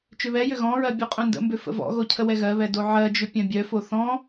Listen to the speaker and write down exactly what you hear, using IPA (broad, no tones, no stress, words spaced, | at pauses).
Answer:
t͡ʃʏβɛjʏ ɣɔ̃ɹɜ bʲoqʼœ̃ndə̰mbʏ fə̰vɔ̰ɣo cʰəwɛɣɜβɛ doʕɜd͡ʒʏ pʲœ̃bʲœfo θɔ̃